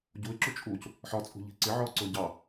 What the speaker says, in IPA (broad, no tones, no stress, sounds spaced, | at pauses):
ɟ u ɪ̯ ǁ u t͡ʃʼ u c | ħ ɒ t͡sʼ ṳ ʎ i̤ ǀ ɪ ʕ ɔ ǀ ʊ ɟ ɑ